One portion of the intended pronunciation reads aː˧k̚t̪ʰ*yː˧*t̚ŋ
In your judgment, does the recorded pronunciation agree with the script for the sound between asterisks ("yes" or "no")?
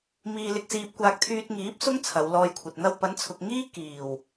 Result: yes